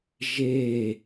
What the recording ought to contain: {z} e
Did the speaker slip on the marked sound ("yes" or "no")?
yes